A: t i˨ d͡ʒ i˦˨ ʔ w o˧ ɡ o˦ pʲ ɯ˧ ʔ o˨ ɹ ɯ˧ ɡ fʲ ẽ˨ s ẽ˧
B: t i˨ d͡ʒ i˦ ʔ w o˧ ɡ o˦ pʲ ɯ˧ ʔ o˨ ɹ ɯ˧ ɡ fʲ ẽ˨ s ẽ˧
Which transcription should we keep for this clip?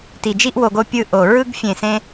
B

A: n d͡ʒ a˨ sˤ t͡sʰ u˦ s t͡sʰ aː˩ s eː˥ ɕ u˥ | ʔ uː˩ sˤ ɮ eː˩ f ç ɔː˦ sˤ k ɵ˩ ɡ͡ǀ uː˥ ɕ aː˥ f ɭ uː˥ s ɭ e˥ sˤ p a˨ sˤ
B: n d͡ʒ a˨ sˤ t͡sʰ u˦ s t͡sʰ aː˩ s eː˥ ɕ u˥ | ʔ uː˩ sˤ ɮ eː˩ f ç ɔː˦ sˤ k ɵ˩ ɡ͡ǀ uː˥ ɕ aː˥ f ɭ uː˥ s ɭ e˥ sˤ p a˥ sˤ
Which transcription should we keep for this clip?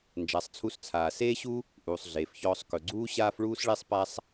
B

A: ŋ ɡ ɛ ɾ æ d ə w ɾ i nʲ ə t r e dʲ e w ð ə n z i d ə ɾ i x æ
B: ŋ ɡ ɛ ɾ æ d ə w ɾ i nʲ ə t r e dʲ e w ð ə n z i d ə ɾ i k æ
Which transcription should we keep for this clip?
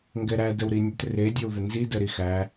A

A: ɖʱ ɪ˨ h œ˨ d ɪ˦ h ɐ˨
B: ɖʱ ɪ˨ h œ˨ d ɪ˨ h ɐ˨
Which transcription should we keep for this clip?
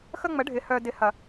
B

